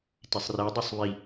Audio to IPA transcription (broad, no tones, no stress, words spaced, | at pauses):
tesˤre dˤosˤβi